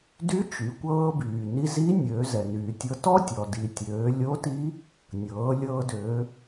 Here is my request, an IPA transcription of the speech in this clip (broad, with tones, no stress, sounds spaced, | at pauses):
d y˧˥ t͡ʃ y˩˧ kʷ ɤː˧ b yː˩ n i˧ z i˧˥ nʲ øː˩˧ z ɛ˩ n yː˩ tʲ ɤ˧ t ɔ˥ tʲ ɔ˩ d i˩ tʲ øː˩˧ lʲ o˧˥ t i˧˥ | nʲ ɤː˩˧ lʲ ɤː˧ d øː˩˧